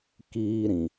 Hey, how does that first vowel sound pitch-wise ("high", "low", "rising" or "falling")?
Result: high